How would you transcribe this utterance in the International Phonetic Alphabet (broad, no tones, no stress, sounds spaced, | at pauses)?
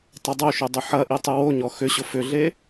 tˤ ə dˤ o ʃ ʏ dˤ ʏ ħ ɐ ʔ i tˤ ʏ w o ɲ ɔ x ʏ ɕ ʊ f ʏ ɮ e